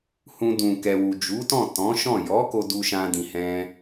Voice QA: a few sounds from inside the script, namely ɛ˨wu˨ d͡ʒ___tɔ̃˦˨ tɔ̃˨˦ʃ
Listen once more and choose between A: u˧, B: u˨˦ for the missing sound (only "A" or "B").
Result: B